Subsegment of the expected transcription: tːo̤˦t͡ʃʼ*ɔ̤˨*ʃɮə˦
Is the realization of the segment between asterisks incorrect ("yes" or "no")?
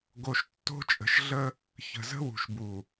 yes